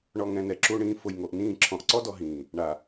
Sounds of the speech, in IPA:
ɳ ɔ˨ ŋ ɛ̃˨ n ɛ˨ ǁ u˨ ɳ ĩː˨ f ʊ˨ j ŋ o˨ ʔ n ĩː˦˨ ǁʰ ɔ̃˨ ʔ ǀ ɔ˦ d ɔ˨ ɦ ĩː˨ | ɳ a˨

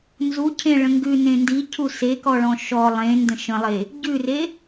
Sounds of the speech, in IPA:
n z u cʰ ẽ ɭ ə̃ ŋ ɡ ʉ n ẽ n d i cʰ u s e k ɔ ɭ ɔ̃ ʃ ɔ lˠ ẽ n d ə̃ ʃ ə̃ lˠ e | ɟ ʉ r e

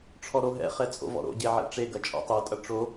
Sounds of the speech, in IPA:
ʈ͡ʂʰ ɔ ɾ o ɦ ɛ̰ χ ɛ t͡sʼ o̰ v ɔ̰ ɾ o̰ ɟ e ʕ ḛ ʈ͡ʂ e ɡ ɐ t͡ʃʼ ɔ̰ tˤ o tʼ ɐ ʈ͡ʂ o

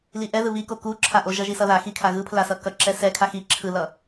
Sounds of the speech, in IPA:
l i ʔ ɛ ð ɯ β i k o k u ǁʰ a ʔ o ʒ ʌ ʒ i s ʌ ð a x i kʰ a ɣ ɯ pʰ l a s ʌ k ʌ ǁ ɛ s ɛ kʰ a x i ǁʰ ɯ l ʌ

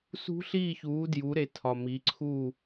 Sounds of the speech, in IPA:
s ṳ˦˥ ɬ iː˥˨ ç uː˨˥ d j u˨˥ ɾ e˨˥ tʰ ɒ˨ m i˨˥ ǀʰ uː˥˨

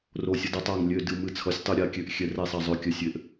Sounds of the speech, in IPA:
r o˨˩ sʲ ʌ˩˧ d ʌ˩˧ tˤ a˨˩ ŋ lʲ ø˨˩ d ɨ˨˩ m ɨ˨˩ t͡sʰ ʌ˩˧ sʲ tˤ ɨ˨˩ ɾʲ a˩˧ kʲ ø˩˧ ʔ xʲ ɛ˩˧ r ɛ˨˩ sˤ a˨˩ zˤ ø˨˩ kʲ ə˩˧ sʲ ø˩˧ ʔ

